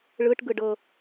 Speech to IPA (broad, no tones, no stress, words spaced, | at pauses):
ɭɯʈ ɡɯɖɤ